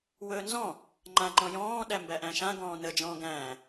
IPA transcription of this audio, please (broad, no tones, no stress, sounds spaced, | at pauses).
w ɵː n z ɔ̃ | ŋ͡ǃ ã ŋ͡ǃ ɔ̃ j ɔ̃ː ɗ æ m b æ ʔ æ̃ ʃ ã ɡ ɔ̃ː n ə d͡ʒ ɔ̃ː ɡ æ̃ː